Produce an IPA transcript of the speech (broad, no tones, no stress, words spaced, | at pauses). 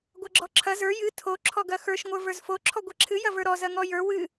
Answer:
ɡʷɐɡ͡ǁɔǁʰɐ zə˞ jɨ tʰo ǁʰɔɡɐxə˞ʃ ŋʷə˞və˞zfo ǁʰɔɡʷɛǁʰɨ jɐvə˞ɾɔ zɐŋɔjə˞ wɨ